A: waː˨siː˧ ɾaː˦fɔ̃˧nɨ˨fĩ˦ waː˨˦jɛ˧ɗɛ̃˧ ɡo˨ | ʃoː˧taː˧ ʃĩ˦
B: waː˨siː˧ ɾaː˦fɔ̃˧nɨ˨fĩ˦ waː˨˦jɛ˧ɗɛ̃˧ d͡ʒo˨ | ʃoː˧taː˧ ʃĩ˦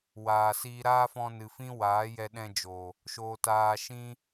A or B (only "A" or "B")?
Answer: B